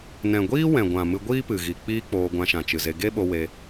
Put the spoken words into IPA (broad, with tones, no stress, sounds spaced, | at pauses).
n ɛ̃˨ ɡʷ iː˦ w ɛ̃˨ ɡʷ ã˨ m ɨ˧ ɡʷ iː˦ p ɨ˨ ɣ i˨ k͡p iː˦ k͡p oː˧ ɡʷ ã˧ ʃ ã˨ t͡ʃ ɨ˨ z e˧ ɡ e˦ ɓ o˧ w e˧